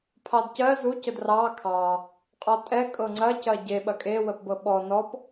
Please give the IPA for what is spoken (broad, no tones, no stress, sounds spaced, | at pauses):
pʰ ɑ d c ɜ z u c ə d r ɑ kʰ ɑ | qʼ ɔ tʼ ɛ kʼ ɤ ŋ͡ǀ ɐ c ɐ ɟ e ɓ ɐ kʼ e w ə p b ɤ ɓ ɔ n ɔ p